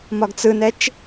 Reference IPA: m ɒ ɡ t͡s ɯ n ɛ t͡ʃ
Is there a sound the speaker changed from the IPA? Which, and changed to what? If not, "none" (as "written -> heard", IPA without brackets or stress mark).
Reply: none